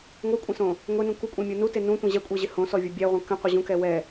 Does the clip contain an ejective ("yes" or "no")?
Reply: yes